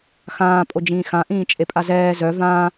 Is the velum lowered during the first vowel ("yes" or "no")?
yes